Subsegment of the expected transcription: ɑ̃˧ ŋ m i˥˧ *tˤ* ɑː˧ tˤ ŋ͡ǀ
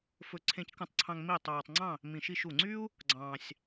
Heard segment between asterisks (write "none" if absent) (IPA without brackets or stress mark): tˤ